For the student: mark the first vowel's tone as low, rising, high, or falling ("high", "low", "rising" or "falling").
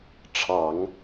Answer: low